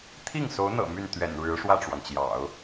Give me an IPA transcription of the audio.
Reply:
t̪ʰ i˥˩ ŋ s o˧˥ ʊ̯ n̪ ɤ̰˨˩ m y˥˩ n t̪ ɥ ɛ̰˨˩ n ɻ ɻ̩˧˥ ʂ w ä˥˩ ʈ͡ʂ w ɑ˩ ŋ t͡ɕ j ɑ̰˨˩˦ ʊ̯

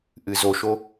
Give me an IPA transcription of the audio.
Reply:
ʔ ɨ z o ʃ o

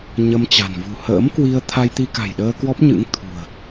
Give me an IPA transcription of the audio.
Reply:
ɲ ə˧ m t͡ɕ a̤˨˩ n v ṳ˨˩ h ə̰ː˧˥ m k w i˧ ə̯ t̪ʰ a˧ j t̪ i˧ k a̤˨˩ j ɗ əː˧ k w ɔ˦˥ p̚ ɲ ɨ̰˧˥ ŋ t̪ʰ ṳ˨˩ ə̯

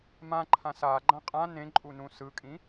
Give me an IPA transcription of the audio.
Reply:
m ã ǃʰ ã s a ɡ͡ǃ ã qʼ ã n ẽ ǃʼ u n ũ s ɯ kʼ ĩ

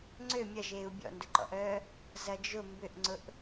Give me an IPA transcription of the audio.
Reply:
ŋ͡ǀ ø mʲ ɐ ʒ eː u̯ bʲ ɔ̰ n d ʊ ǃ ɔ̰ ʔ œː | z ɐ d͡ʒ ʊ m b ʏ ʔ ŋ͡ǀ ʊ ʔ

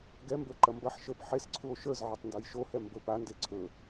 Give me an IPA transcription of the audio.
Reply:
ɡ ɛ m b ə˞ ǃ ɐ m b ɐ ħ ʃ ə˞ p ħ e s ǀʰ u o̯ ʃ ə˞ z ʕ ə˞ tˤ n d o j ʃ o h ɛ m b ɵ p a n d e ǀʰ ɵ

